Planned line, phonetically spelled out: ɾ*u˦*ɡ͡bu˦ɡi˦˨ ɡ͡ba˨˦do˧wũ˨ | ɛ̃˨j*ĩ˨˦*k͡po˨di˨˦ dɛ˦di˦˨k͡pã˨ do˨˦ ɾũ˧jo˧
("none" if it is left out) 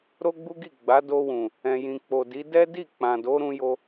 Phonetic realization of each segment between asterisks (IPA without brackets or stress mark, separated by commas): o˦, ĩ˨